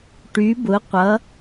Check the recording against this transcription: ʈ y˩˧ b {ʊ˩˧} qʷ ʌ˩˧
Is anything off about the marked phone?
no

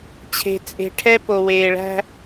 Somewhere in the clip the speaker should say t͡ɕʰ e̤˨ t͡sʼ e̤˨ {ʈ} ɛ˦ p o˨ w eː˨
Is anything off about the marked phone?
yes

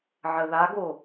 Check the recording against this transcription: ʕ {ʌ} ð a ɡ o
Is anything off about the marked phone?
yes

